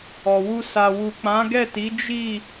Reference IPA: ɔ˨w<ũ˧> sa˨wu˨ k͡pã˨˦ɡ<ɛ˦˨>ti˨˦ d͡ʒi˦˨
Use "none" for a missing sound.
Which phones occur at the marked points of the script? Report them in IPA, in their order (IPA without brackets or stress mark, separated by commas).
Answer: u˧, ɛ˦˨